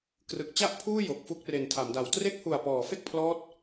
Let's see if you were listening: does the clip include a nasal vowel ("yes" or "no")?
no